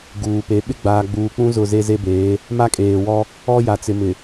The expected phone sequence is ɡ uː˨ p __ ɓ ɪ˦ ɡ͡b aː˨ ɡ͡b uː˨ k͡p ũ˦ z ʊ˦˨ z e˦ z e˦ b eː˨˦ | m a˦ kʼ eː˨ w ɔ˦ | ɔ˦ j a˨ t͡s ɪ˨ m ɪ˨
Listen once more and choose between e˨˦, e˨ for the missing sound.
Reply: e˨˦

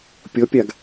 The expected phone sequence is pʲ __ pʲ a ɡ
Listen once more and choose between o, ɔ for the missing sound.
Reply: ɔ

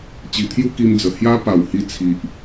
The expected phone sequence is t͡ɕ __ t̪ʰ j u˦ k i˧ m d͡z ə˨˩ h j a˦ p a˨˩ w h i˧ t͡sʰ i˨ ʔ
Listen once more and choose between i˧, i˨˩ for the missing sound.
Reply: i˨˩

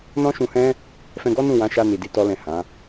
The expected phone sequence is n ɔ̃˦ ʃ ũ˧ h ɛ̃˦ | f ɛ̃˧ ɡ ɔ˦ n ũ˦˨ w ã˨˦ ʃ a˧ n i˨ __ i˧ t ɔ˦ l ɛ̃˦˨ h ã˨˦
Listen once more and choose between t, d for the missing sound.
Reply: d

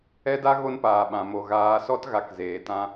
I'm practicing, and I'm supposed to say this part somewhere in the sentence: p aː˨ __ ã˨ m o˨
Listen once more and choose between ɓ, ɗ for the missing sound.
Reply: ɓ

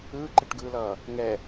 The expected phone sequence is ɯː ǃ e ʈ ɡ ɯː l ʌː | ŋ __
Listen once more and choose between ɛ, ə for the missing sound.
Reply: ɛ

